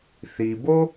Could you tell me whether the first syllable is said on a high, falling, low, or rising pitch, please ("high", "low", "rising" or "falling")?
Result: low